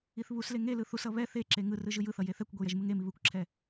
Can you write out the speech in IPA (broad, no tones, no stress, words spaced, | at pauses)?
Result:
iθβusle ŋe lɯθusʌ βɛ θeǁe ŋɯrɯ ʒɯjɯθʌ jeθɛkʷɡʷej ɛʒmɯŋemi βɯkʷǁʰɛ